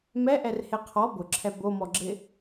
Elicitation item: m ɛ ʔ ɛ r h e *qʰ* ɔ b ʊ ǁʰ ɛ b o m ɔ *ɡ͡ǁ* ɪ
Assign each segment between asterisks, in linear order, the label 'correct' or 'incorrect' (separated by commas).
correct, correct